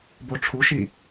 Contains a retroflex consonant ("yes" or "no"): yes